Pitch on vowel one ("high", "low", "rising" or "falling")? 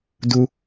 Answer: high